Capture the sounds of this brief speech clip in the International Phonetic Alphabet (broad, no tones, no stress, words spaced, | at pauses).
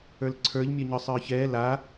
ə˞lǀʰə˞ʎmʲœɲœsˤ ə˞çɛ la